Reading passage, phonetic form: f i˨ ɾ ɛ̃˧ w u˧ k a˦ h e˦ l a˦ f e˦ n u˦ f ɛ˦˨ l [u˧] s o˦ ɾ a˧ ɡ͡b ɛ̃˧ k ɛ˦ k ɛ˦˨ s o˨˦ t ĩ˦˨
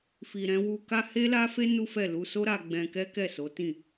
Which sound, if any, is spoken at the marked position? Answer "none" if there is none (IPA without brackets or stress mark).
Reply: u˧